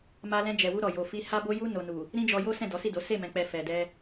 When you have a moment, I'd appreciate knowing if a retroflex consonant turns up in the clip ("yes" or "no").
no